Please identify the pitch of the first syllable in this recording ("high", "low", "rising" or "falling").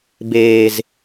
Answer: low